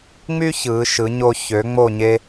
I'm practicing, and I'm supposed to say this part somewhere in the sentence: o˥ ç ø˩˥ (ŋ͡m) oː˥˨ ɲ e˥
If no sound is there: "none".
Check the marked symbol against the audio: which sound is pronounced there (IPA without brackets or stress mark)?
ŋ͡m